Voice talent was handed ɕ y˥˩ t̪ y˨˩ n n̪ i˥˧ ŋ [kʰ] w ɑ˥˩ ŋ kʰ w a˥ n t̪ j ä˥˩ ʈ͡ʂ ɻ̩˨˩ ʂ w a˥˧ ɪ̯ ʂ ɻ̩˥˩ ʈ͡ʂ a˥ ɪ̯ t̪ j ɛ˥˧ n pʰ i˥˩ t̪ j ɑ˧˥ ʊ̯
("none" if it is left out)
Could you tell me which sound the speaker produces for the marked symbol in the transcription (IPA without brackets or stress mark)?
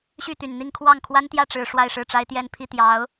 kʰ